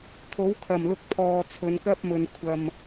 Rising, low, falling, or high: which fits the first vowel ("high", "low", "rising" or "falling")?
rising